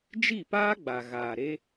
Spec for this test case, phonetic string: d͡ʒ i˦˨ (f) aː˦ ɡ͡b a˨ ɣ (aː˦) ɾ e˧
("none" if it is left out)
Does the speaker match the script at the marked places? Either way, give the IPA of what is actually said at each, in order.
p, aː˨

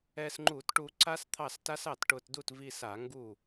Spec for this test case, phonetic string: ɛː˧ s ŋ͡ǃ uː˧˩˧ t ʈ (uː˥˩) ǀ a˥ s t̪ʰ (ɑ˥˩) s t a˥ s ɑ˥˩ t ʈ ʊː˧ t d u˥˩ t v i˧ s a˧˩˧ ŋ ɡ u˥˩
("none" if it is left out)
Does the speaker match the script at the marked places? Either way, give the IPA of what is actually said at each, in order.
uː˧, ɑ˥˩

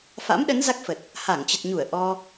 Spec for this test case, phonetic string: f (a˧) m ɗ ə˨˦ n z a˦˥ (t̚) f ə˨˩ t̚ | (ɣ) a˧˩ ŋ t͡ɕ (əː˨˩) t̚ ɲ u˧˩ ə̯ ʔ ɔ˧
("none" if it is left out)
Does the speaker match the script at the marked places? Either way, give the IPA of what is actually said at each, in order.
a̰˧˥, k̚, h, ə˨˩

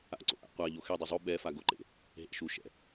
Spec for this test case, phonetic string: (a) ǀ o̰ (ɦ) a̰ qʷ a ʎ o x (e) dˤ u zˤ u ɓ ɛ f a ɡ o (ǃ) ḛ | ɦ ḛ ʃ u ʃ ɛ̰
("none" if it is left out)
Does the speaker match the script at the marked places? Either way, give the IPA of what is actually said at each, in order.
a̰, ʔ, e, ǃ

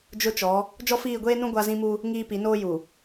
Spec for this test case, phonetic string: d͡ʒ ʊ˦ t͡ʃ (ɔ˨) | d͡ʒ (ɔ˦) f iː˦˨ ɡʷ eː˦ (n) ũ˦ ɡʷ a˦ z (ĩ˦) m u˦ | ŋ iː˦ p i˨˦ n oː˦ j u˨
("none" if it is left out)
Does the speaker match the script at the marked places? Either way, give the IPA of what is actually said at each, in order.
ɔ˨˦, ɔ˦, n, ĩ˦

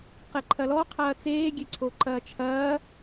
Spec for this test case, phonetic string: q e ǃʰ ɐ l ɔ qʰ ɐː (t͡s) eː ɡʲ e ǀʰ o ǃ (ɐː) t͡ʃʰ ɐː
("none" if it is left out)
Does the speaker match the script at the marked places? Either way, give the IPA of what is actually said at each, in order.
t͡s, ɐː

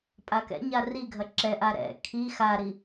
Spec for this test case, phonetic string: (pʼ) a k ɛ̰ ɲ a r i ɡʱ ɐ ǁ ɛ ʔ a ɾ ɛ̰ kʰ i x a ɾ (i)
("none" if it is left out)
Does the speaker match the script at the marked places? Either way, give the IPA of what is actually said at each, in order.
pʼ, i

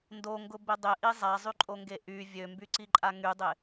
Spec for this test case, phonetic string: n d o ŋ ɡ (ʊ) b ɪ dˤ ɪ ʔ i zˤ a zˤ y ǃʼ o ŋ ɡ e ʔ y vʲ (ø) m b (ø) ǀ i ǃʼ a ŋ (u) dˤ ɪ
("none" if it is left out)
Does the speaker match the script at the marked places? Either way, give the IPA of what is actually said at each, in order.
ʊ, ø, y, y

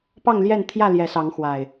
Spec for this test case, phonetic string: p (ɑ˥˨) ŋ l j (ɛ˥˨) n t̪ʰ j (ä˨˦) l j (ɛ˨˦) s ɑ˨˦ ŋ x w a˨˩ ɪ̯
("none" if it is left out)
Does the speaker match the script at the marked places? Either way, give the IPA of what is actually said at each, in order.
ɑ˥˨, ɛ˥˨, ä˥˨, ɛ˨˦

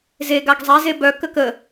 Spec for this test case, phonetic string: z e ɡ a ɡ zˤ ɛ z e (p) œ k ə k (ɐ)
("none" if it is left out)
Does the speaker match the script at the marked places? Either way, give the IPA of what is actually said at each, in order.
b, ə

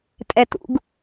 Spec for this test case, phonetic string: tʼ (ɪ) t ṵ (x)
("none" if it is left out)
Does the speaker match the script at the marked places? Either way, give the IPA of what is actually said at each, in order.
ɛ, ɡ

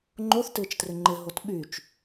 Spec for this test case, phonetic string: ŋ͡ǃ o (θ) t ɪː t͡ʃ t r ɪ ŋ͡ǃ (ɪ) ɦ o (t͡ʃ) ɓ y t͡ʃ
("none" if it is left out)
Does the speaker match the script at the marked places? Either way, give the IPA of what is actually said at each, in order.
θ, ɪ, t

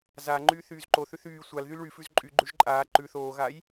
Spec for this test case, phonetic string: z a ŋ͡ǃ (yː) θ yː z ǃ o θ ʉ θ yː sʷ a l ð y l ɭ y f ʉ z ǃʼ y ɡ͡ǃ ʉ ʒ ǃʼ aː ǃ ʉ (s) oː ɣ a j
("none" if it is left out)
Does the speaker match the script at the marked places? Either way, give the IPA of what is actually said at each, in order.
yː, θ

